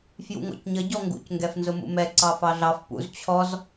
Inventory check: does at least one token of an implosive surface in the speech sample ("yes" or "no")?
no